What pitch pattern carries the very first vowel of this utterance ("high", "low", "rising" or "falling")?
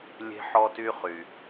high